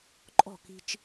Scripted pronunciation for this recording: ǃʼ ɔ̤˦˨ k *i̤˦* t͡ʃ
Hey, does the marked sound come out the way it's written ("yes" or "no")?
yes